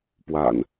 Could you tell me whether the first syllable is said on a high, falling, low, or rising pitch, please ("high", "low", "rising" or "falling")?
low